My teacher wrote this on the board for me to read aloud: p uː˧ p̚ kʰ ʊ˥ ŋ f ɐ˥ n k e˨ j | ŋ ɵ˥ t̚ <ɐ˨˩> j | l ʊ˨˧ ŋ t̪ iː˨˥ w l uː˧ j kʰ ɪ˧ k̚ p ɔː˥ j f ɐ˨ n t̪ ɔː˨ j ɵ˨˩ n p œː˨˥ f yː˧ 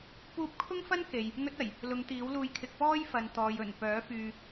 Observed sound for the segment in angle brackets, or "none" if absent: ɐ˨˩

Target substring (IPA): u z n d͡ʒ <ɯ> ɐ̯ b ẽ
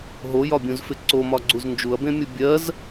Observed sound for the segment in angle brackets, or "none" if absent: u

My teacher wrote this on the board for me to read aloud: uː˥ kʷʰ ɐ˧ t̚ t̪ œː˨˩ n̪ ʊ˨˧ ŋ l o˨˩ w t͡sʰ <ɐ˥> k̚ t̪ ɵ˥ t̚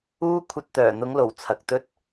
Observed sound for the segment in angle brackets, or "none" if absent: ɐ˨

